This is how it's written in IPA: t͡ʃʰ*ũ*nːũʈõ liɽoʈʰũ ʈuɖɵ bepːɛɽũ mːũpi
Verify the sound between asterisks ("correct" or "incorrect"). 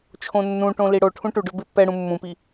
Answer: incorrect